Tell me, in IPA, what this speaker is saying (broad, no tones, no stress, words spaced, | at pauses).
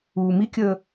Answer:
uːmikʲəː